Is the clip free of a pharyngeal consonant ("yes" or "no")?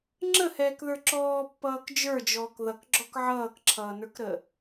no